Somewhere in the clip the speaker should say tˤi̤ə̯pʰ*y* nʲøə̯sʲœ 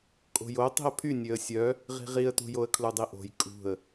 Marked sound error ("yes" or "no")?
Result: no